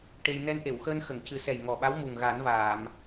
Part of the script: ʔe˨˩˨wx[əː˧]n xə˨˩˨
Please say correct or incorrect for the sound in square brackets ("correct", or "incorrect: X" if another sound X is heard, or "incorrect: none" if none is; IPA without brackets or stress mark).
correct